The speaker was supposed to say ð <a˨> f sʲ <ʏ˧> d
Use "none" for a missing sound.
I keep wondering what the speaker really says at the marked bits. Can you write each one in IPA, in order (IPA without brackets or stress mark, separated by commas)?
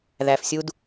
æ˨, u˧